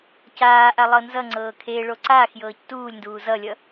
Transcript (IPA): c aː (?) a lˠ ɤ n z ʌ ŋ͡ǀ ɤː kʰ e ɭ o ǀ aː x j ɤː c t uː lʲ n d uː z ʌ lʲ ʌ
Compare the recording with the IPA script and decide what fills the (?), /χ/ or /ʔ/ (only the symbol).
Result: ʔ